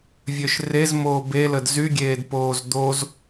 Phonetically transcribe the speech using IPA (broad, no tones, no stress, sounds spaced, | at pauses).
vʲ ø ʃ r e z m oː b e l ə d z y ɡʲ eː d p oː z d̪ o z